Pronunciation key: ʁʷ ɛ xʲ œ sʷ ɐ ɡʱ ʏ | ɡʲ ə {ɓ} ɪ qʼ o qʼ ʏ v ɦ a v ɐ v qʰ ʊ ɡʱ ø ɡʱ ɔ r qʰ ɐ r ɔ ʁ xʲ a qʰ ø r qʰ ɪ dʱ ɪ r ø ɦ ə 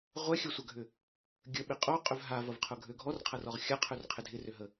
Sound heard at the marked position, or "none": ɓ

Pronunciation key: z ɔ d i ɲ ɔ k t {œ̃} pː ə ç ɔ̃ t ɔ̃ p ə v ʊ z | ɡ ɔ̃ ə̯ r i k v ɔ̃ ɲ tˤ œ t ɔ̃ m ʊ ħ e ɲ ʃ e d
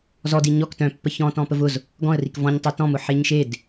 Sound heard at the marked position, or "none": œ̃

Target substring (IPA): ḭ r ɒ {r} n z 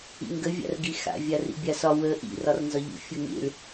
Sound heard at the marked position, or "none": r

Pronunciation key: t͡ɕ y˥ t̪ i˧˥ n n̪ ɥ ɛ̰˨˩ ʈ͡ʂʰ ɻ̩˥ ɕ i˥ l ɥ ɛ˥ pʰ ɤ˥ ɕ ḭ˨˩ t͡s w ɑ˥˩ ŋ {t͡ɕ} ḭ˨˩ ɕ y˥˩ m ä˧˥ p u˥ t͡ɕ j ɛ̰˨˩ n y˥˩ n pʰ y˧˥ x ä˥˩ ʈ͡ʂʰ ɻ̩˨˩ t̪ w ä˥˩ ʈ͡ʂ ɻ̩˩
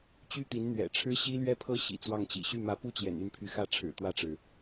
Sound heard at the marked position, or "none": t͡ɕ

